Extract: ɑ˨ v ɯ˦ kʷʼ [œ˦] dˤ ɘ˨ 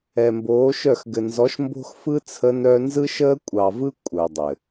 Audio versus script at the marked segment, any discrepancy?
yes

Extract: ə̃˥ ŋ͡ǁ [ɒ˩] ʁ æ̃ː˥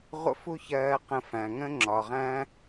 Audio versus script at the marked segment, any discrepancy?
no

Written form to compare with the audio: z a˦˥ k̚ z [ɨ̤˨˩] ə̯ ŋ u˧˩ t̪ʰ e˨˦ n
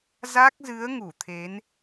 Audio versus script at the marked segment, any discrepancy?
yes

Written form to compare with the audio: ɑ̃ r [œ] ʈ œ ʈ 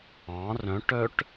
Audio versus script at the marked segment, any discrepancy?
yes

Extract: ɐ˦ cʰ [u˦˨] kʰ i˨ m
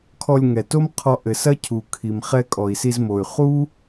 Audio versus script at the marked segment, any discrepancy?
yes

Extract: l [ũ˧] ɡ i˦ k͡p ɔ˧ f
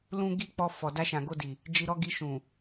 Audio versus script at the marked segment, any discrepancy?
no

